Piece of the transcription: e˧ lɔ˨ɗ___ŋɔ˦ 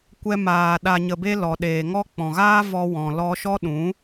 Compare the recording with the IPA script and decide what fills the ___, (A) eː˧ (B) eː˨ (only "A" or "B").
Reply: B